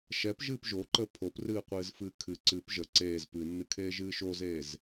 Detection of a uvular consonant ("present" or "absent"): present